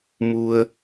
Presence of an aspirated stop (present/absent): absent